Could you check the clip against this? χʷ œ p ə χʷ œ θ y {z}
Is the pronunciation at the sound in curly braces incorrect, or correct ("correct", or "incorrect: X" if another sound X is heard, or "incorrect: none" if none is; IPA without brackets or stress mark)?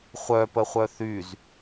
correct